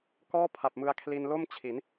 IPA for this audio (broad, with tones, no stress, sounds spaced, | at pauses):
k ɔː˥˩ pʰ a˨˩ p̚ m ɯ˧ a̯ kʰ l i˧ n l o˥˩ m t͡ɕʰ i˩˦ n